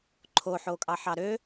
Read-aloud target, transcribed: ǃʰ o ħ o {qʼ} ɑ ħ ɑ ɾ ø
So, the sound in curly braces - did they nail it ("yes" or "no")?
no